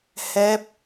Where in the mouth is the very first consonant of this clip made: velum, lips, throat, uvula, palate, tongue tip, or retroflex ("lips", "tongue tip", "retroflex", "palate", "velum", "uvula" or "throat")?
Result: throat